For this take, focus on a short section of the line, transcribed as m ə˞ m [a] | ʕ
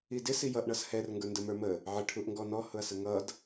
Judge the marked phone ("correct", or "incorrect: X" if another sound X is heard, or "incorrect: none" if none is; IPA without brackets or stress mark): incorrect: ə